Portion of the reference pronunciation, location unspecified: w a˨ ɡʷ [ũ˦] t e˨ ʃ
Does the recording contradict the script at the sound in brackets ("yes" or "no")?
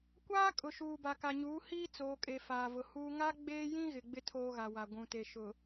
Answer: yes